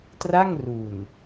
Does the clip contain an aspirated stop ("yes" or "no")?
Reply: no